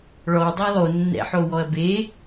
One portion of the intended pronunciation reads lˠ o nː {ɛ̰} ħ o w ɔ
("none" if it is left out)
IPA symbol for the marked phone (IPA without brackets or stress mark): ɛ̰